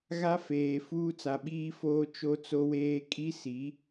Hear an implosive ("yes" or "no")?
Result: yes